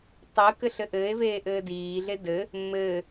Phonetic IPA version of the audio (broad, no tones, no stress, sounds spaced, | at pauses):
tˤ ɘː k ɘ ɬ ɘ ʔ ɘː e̯ v eː ʔ ɘː d iː ɮ e d ɘ | mː ɘː